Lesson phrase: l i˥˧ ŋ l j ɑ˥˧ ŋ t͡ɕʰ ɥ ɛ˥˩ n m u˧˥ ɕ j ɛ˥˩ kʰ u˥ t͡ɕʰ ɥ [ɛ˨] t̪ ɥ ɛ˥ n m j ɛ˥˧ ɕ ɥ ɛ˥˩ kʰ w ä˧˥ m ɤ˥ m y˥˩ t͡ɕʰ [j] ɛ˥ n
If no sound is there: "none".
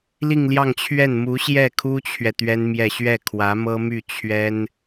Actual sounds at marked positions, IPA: ɛ˨, ɥ

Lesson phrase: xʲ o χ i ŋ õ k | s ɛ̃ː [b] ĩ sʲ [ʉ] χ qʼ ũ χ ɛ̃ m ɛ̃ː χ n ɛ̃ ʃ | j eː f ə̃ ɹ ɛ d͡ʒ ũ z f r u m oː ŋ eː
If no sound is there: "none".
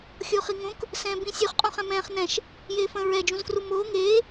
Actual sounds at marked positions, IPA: b, ʉ

